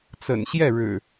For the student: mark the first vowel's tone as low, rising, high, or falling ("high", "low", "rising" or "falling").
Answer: low